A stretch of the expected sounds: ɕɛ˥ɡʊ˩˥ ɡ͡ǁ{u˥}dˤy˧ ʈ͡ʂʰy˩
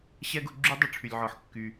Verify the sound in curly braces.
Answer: incorrect: y˥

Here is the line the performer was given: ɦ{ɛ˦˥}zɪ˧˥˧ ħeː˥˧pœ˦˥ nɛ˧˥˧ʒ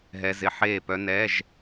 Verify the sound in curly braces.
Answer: correct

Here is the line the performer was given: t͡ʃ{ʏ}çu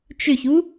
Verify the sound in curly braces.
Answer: correct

